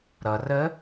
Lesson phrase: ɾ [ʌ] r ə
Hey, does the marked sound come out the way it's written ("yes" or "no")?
yes